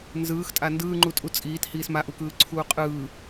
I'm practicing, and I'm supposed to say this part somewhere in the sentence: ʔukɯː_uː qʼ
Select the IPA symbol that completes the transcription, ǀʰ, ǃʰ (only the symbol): ǀʰ